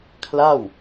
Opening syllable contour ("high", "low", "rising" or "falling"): falling